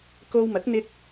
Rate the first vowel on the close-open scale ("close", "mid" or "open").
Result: mid